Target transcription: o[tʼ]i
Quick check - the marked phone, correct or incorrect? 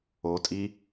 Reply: correct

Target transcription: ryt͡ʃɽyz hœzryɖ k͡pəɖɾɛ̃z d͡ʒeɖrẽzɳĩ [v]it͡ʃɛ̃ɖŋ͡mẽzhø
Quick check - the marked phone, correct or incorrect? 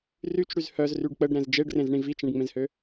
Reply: correct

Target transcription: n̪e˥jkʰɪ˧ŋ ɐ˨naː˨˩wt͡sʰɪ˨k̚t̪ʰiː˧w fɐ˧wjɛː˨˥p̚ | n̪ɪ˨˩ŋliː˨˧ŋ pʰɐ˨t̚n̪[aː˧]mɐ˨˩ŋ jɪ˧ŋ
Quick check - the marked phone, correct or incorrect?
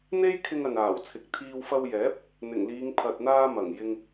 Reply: correct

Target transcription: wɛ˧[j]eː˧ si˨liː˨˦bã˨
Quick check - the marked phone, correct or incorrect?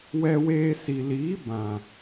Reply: incorrect: w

